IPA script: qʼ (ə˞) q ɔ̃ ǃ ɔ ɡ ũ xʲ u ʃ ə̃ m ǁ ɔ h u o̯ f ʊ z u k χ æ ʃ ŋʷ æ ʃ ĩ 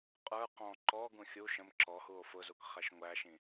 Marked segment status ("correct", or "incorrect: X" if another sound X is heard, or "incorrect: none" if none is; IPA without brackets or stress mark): correct